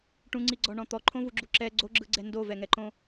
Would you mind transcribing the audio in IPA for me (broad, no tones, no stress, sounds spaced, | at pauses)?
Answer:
ʈ ũ ŋ͡ǀ i ɡ͡ǀ ɔ ɳ ɔ̃ t̪ ɔ ǃʰ õ v u ɡ͡ǁ u ǁ ɛ ɡ͡ǀ o ɡ͡ǁ ɯ ɡ͡ǀ ɛ n d o v ɛ ŋ ɛ ǃ õ